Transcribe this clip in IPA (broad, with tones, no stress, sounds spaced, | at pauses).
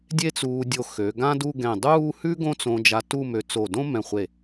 dʲ e˥ t͡s uː˧ dʲ o˧ x ø˩˧ ɡ ã˥ d u˥˧ ɡ ɛ̃˧˩ dˤ uː˥˧ h ʉ˥ ɡ õ˥˧ t͡s õ˧ d͡ʒ a˧ t u˥˧ m ø˧ t͡s o˧˩ d õ˥ m ɛ̃˧˩ χʷ e˧˩